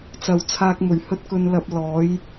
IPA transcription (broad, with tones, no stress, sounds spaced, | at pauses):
t͡s ɐ˨ w t͡sʰ aː˧ k̚ m ɵ˨˩ ɥ h ɵ˧ t̚ k ɵ˨ n l ɐ˨ p̚ l ɔː˨˥ j